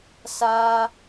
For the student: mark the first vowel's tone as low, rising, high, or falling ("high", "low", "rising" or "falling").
high